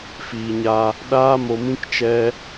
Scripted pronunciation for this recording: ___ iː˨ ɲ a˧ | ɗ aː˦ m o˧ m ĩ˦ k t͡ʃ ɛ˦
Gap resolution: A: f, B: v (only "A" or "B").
A